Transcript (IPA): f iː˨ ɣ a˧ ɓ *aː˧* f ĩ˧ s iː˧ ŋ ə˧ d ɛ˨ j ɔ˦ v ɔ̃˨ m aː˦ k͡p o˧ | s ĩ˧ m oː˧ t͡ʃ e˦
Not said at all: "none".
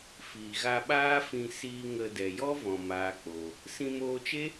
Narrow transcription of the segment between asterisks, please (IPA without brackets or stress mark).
aː˦